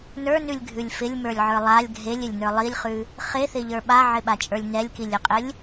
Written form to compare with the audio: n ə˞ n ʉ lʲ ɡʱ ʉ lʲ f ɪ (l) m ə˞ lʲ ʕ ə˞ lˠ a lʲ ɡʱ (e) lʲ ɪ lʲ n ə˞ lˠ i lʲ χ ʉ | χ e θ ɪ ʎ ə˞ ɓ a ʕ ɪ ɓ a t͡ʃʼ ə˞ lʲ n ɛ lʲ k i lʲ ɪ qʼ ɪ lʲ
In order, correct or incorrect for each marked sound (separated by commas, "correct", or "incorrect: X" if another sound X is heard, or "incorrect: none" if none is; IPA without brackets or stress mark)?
incorrect: lʲ, correct